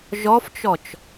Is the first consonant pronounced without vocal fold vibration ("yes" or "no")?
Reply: no